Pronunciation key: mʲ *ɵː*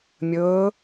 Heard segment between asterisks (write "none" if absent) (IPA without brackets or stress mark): ɵː